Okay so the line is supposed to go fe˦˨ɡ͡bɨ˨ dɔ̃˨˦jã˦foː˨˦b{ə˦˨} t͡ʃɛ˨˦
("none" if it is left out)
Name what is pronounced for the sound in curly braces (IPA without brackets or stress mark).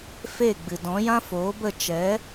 ə˦˨